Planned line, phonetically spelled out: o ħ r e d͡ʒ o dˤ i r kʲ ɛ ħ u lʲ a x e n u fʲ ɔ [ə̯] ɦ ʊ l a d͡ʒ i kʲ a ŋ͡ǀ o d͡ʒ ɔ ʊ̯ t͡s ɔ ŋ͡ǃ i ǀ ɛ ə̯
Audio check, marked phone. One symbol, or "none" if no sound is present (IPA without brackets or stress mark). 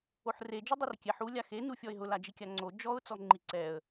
ɪ̯